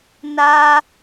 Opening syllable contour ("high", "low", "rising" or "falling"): high